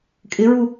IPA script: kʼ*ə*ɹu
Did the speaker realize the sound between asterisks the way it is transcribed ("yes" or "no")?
no